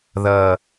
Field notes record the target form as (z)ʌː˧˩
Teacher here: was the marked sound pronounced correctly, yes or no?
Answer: no